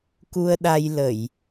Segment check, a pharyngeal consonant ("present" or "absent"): absent